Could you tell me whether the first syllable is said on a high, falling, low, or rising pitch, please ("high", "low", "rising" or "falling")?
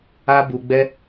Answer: high